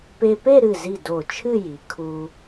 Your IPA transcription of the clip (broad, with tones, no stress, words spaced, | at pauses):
pe˧pe˥˧ɾɨ˧˩zi˧˩ do˧˩t͡ʃʰɨ˥˧ji˩˧ kʰu˧